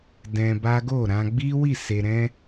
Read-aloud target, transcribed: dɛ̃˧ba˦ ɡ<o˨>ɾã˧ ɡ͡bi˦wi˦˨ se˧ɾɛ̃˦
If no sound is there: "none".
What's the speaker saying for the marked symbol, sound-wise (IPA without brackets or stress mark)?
o˦˨